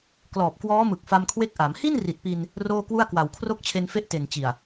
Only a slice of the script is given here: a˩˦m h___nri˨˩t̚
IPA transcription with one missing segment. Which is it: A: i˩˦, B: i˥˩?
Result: B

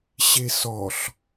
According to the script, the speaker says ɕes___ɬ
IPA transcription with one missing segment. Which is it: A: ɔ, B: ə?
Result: A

